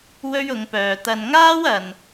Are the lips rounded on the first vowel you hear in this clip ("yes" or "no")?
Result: yes